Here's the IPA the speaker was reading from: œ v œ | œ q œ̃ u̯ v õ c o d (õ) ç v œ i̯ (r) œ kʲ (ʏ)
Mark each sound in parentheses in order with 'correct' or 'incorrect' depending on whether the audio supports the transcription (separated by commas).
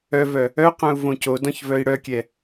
incorrect, incorrect, incorrect